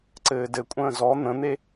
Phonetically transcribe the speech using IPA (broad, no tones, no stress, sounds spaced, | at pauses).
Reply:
ǀ ɘː d ɘ kʷʼ ə̃ː z ɔ n̪ ə̃ n̪ e